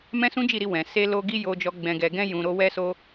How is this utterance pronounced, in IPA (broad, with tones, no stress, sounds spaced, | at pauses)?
m ɛ̃˦ s ũ˦ d͡ʒ i˦˨ ɾ i˧ w ɛ̃˨ s e˧ l o˧ ɡ i˧ j o˨ d͡ʒ ɔ˨ ɡ͡b ɛ̃˨ ɡ ɛ˨ ɡ ɛ̃˧ j ũ˨ ɾ o˧ w ɛ˧ s o˧